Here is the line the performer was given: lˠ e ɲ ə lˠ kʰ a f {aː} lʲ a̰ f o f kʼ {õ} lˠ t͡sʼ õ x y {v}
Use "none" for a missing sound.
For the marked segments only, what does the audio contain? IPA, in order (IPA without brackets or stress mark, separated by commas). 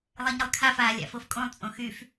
aː, õ, f